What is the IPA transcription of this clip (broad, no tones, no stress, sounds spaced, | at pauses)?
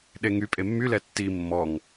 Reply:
ɗ e ŋ y pʼ e mː y l ɛ tː i mː ɔ ŋ